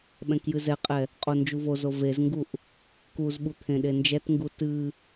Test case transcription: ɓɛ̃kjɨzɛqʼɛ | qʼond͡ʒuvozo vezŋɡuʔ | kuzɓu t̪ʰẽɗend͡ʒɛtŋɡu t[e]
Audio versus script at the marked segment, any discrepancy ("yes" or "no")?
yes